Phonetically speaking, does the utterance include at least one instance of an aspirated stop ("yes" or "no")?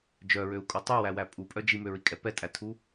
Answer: yes